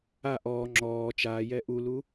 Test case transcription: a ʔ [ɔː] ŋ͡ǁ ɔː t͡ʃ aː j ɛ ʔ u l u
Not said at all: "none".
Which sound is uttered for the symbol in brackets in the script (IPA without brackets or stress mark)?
ɔː